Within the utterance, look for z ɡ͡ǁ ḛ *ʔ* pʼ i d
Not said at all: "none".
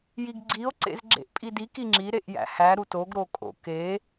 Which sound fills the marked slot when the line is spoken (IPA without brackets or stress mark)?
ʔ